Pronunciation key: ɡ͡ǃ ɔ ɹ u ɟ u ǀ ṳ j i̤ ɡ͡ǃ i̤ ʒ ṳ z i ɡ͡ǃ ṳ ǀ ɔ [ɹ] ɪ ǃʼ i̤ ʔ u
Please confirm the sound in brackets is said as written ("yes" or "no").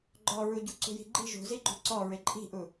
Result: yes